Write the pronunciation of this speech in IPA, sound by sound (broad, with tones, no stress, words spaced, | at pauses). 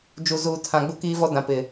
d͡ʒu˨zuː˨tʰã˨ ɡ͡bu˦kiː˦vɔ˦ dã˨pɪ˨